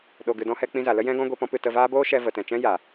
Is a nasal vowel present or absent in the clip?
present